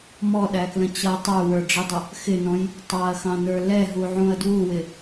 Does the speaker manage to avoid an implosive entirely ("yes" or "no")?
no